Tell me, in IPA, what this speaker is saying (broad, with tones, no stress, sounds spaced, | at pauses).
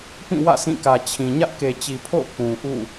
p ĩ˦˨ w ä̰˦˨ s ĩ˦˨ k ä˨ t͡ɕʰ ĩ˨ ɲ ä˦ ʔ k e˨ t͡ɕ i˨ pʰ o̰˦˨ ʊ̯ k ũ˨ ʔ ṵ˦˨